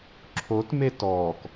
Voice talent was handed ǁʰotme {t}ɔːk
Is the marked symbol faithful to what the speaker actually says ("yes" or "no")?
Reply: yes